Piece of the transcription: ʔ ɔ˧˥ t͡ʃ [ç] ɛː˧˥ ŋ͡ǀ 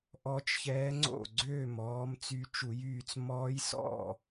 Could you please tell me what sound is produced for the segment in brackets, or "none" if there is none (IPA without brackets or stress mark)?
ç